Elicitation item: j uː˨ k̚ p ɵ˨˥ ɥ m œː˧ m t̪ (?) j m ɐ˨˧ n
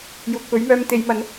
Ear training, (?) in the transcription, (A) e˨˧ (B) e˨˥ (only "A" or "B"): A